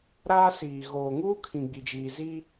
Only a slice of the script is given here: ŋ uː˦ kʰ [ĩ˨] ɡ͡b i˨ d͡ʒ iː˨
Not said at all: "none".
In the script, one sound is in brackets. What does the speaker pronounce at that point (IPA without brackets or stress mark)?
ĩ˨